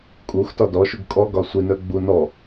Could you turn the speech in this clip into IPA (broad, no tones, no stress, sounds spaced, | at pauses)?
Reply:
kʼ u x t ɒ d ɔ ʃ u ɡ kʼ ɔ ɡ ɒ sʷ i n œ ɡ͡b u n ɔ